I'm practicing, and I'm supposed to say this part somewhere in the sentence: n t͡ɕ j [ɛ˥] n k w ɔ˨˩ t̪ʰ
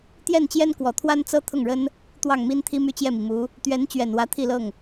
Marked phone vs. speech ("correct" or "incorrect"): correct